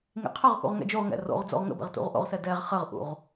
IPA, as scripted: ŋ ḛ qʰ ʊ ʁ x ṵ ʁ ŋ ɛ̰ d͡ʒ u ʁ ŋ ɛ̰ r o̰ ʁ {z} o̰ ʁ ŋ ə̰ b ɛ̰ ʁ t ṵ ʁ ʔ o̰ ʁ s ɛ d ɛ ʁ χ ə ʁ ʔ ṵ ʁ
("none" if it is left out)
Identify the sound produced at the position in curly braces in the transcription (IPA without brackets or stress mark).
d͡z